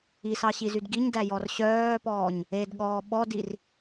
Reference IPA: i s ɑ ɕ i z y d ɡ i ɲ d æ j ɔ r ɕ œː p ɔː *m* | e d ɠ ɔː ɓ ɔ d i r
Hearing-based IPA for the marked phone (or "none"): ɲ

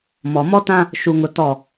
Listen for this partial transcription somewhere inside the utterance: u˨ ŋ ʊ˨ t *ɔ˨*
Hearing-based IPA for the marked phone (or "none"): ɔ˦˨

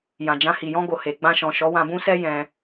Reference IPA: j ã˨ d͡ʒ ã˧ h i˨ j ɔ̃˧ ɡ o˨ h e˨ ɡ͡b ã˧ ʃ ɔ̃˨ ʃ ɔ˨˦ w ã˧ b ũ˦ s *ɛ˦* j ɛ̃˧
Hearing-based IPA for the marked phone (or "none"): ɛ˦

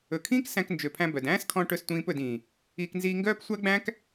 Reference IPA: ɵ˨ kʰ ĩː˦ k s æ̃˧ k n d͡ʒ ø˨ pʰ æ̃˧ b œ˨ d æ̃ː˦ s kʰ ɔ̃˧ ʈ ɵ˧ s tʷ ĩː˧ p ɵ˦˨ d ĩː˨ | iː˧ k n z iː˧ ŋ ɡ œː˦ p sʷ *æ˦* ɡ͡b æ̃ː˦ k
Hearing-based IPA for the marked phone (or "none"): æ˦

